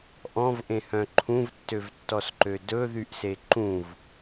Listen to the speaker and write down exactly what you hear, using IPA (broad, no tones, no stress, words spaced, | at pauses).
ʔɔ̃vʔẽhœ̃ ǃʰũvtːøvtːɔsǃø dɵðyʔse ǃũv